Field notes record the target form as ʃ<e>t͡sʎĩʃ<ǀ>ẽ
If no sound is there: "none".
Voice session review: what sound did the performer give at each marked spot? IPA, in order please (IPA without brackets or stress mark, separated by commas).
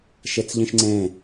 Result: e, ŋ͡ǀ